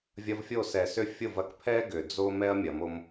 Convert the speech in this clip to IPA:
vʲ ɐ˧ v fʲ o˦˨ s ɛ˨ s ʏ˦˨ fʲ ʊ˦˨ v ɐ˧ k pʰ ɛ˦ ɡ ʏ˨ d͡z o˦ m ɛ˦ ɐ̯ mʲ ɐ˨˦ m o˦ m

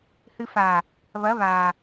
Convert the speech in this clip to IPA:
h ɨ f a | β ɐ β a

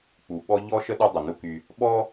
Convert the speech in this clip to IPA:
k͡p u˨ ɓ ɔ˦ ʎ ɔ˥ ʃ ə˥ ɗ u˦ dˤ ə˩ n u˦ k y˨ | ɓ ɔ˥

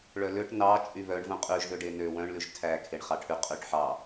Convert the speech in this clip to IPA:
ɭ œ l ø ʈ n ɑ t͡ʃʼ y β œ ɳ v ũ qʼ ʉ ʒ ð ø ɖ e n ø w œ̃ ɳ l ʉ ʒ tʰ æ kʰ e ɳ χ ɑ ʈʰ ʉ qʼ ʉ ʈ ħ ɑ

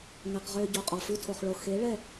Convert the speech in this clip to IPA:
ŋ ɛ˧ q ʁ ø˦ ɟ o˧ qʼ ɔ˨ f ʉ˦ tʰ o˧ χ ɭ o˧ x e˨˦ ɭ ɛ˦˨

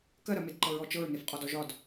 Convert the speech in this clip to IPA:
k ɜ ɾ ɜ m e d ǃ ɤ ɹ ɔ t͡ʃ ɤ ɹ n e f qʼ ɒ d ɔ ʒ ɒ d

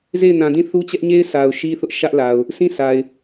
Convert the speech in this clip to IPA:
z e˦˨ ɪ̯ n ã˨ d ĩ˦˨ θ u˦ t͡ɕ ɛ˦ ʔ ɲ e˦ ɪ̯ s a˨ ʊ̯ ʃ i˦ θ ʊ˦ ʔ ʃ ä˦ ʔ l a˨ ʊ̯ | s ĩ˦˨ s a˨ ɪ̯

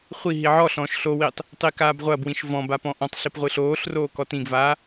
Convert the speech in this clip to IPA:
χʷ i ɦ i ʕ ɔ ɬ ɔ̃ː ʃ ɬ o w i tˤ | tˤ i k aː b ʁʷ ɐ b w ĩ ʃ v ɔ̃ b a p ɔ̃ː ʔ ɔ̃ tˤ ɬ i p ʁʷ ɨ ɬ oː ɬ r oː k ɔ t ĩ ɡ v aː

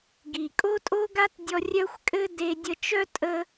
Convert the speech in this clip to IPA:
ɡ i˩ kʼ o˥ tʼ o˥ ɡ a˥ t dʲ ɔ˧ rʲ œ˥ xʷ kʼ ɘ˥ d e˧ dʲ ə˧ t͡ʃ œ˥ tʼ ə˧

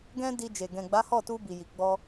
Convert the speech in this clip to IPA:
ɡ ɛ̃˦ d i˧ d͡ʒ e˨ ɡ ɛ̃˨ ɡ͡b a˨˦ h ɔ˦˨ t u˧ b i˨ j i˨ ɡ͡b ɔ˧

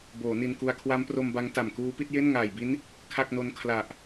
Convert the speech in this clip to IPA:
b oː˩˦ n i˧ n k u˧ a̯ kʰ w a˦˥ m p r o˧ m b a˦˥ ŋ t a˨˩ m k uː˦˥ p i˦˥ t̚ j e˥˩ n ŋ aː˨˩ j b i˦˥ n | kʰ a˥˩ k̚ n o˦˥ n kʰ l a˨˩ ʔ

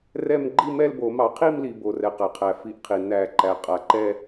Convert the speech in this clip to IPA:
r ɛ˥˧ m ɡ͡ǃ i˥˧ m ɛ˥˧ l b o˨˩˦ m ɑ˨˩˦ qʰ i˥˧ m l i˩ b o˩ r ɛ˩ q æ˩ qʰ æ˩ f i˨˩˦ ʔ qʰ i˩ n æ˨˩˦ ǃ æ˩ qʼ a˩ ǃ ɛ˥˧

